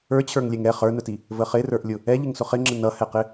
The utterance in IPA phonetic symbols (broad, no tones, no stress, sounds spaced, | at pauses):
ə˞ t͡ɕʰ ə˞ ŋ lʲ ɛ ŋ ɛ χ ə˞ n ə t i | v ə χ ɪ r ə˞ ʔ lʲ ʊ | ɛ ʎ ɪ ŋ s ʊ χ ɪ ŋ͡ǁ ɪ n ʌ h ɛ q ɪ